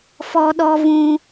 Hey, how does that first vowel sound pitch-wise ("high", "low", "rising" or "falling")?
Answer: high